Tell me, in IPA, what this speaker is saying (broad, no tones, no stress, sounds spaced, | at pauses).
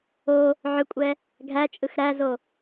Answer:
o | ʕ ʏ kʷʼ ɛ | ɡʱ æ t͡ʃʼ ɯ x ɾ æ z o